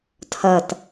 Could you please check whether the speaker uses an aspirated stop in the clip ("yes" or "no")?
yes